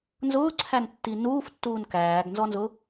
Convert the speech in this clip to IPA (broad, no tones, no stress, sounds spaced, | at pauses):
n z ʊː ǀʰ æ n tː i n uː f tː uː n k æː ɡ n z ɔ n z ʊ